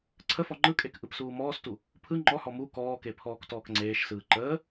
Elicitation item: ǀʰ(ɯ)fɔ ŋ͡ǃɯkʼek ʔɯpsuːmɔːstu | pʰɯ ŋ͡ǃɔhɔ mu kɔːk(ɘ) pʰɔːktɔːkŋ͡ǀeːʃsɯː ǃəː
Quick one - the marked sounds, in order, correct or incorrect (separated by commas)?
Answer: incorrect, incorrect